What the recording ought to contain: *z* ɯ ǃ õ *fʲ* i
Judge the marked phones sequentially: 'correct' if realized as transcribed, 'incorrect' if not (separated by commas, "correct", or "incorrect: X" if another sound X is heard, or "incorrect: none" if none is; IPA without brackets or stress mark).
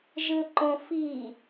incorrect: ʒ, incorrect: f